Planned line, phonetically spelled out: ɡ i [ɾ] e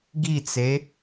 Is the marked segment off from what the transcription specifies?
yes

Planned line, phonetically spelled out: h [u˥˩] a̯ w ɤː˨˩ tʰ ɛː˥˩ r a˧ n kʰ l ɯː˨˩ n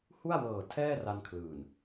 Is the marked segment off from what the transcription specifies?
no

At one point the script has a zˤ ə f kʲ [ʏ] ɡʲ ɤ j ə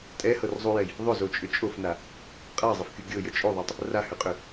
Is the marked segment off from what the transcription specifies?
yes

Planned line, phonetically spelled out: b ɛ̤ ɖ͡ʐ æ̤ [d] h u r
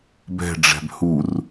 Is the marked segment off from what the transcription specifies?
yes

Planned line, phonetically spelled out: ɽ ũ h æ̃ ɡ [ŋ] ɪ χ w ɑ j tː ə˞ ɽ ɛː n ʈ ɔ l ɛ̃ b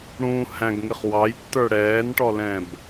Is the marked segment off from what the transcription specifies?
no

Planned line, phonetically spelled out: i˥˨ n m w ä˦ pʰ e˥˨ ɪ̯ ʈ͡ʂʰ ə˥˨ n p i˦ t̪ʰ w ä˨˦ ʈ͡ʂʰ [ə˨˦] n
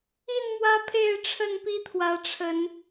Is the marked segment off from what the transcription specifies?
no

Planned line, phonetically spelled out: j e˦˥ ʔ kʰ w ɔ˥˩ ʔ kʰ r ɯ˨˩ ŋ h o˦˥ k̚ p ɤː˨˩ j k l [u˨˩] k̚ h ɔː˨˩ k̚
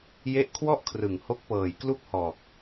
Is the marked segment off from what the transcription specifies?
yes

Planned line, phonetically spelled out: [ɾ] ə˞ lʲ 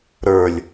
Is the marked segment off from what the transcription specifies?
no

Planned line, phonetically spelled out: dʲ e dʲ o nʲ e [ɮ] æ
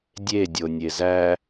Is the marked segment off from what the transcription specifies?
yes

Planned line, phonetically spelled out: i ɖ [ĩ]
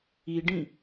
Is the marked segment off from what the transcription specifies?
no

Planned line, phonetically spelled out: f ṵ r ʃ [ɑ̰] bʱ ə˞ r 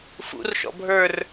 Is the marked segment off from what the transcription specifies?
yes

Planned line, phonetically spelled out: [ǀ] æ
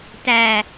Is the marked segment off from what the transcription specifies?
yes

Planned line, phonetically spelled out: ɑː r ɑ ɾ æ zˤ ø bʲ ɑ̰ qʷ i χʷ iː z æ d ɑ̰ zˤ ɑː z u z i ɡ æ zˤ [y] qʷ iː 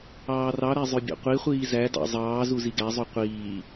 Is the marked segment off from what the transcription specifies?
no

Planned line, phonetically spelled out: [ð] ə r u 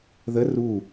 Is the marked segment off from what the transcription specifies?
no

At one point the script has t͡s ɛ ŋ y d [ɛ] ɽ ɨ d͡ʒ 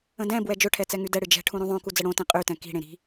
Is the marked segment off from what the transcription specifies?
no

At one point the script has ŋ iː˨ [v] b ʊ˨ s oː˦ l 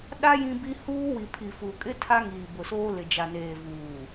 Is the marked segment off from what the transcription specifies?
yes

